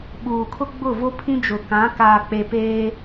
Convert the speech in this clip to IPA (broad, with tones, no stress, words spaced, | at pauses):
ɓuː˨kʰʊ˦ ɡ͡bʊ˦˨vo˦pʰĩ˦ d͡ʒʊ˨kã˨˦ kaː˨k͡pe˨ peː˦